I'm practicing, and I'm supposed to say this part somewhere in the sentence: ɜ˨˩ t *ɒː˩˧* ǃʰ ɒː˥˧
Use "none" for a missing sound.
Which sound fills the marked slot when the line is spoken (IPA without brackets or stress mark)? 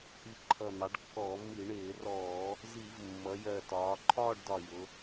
ɒː˩˧